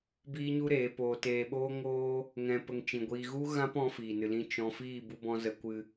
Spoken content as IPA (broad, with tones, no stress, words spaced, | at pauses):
biː˦ɲu˦ɾeː˨˦ poː˧ teː˧ɓoː˦ ŋoː˦ | ŋɛ̃˦pə˦ŋt͡ʃĩ˧ɡʷiː˦ ɣu˦ɣã˦pɔ̃˧ fiː˨nɨ˨lĩ˧ t͡ʃɔ̃˧ fiː˦˨bu˧bɔ̃˧ zə˧kʷɨ˧